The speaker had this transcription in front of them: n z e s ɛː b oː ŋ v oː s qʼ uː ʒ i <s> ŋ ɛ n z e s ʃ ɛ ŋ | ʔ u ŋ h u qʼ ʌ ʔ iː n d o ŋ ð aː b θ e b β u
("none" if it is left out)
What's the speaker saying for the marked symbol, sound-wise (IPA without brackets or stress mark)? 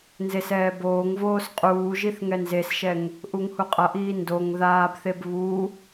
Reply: θ